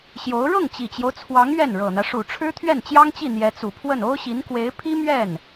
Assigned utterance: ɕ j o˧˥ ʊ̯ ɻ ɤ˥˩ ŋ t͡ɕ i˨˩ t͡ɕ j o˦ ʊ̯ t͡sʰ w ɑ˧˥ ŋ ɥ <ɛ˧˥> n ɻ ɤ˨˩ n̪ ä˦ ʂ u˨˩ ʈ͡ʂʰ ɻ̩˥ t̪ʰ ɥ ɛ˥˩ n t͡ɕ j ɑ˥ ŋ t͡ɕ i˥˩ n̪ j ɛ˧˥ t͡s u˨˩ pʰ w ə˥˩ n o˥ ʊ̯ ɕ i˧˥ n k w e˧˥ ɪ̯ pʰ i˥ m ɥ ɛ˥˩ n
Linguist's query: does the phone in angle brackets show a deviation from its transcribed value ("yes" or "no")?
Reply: yes